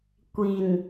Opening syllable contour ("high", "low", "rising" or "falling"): low